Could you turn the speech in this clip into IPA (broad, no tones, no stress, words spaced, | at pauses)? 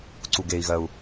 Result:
ǀuɡei̯ɣɜu̯